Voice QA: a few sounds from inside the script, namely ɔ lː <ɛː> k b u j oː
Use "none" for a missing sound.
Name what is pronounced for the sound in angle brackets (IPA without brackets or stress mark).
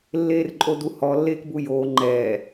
eː